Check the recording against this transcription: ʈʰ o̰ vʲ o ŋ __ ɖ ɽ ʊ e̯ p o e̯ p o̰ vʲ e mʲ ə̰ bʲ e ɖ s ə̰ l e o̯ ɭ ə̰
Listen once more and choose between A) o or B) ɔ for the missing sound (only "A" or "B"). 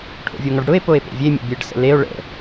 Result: B